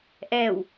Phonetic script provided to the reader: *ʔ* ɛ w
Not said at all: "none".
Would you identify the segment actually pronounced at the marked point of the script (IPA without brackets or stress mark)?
ʔ